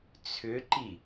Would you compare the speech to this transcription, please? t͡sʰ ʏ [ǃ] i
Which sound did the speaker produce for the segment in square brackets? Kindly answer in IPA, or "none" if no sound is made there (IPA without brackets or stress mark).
ǃ